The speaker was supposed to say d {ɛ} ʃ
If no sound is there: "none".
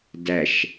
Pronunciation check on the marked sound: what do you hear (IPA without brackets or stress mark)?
æ